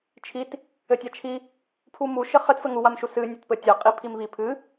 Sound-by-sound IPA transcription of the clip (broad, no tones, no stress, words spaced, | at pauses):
t͡ʃʰit | ɘtʲat͡ʃʰi | pʰumu ʃɘχɘt fɘŋu wamʃusɨ nʲɔtpɘtʲa qʼipʰimβi pʰɨ